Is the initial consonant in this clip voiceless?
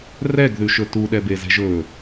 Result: no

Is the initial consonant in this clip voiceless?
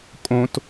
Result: yes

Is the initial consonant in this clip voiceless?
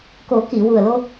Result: yes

